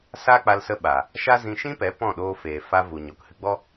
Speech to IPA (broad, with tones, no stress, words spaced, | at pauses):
sa˦k͡pa˧lsə˧ɓa˨ | ʃa˦zĩ˧ ʃĩ˦pɛ˨˦ pɔ̃˦˨ɗoː˧feː˨ fa˧vu˨ ɲo˨k hɨ˧ɡ͡bɔ˦